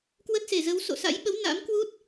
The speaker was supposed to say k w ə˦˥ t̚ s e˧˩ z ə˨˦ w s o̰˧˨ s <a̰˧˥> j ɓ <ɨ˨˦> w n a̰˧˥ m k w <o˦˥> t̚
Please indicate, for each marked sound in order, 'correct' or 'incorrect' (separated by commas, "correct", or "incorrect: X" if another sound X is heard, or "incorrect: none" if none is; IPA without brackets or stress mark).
correct, incorrect: ə˨˦, incorrect: u˦˥